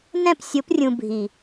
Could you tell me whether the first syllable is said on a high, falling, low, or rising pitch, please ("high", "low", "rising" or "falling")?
falling